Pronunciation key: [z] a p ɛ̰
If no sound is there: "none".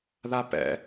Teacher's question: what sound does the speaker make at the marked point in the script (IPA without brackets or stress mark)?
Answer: ð